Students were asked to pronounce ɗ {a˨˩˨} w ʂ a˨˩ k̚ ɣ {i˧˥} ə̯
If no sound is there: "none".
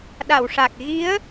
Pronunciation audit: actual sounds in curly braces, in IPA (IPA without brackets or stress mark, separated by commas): a˨˩˨, i˧˥